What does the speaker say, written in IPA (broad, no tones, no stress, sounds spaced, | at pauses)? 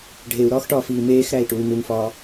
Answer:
ɖʱ e u̯ ɾ ɒː x ʈ ɒː f iː m eː x ɾ æ i̯ ʈ u y̯ n u ŋ f ɒː